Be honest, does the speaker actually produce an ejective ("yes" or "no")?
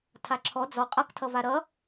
yes